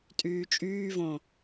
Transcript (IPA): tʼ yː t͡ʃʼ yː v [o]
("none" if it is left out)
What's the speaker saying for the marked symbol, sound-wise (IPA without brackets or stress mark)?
õ